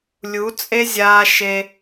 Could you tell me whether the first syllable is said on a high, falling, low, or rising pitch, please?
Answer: rising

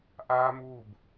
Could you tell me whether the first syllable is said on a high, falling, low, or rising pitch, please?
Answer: high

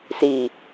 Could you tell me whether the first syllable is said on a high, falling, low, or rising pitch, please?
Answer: low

